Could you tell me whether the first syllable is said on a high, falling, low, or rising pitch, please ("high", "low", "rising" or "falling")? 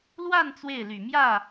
falling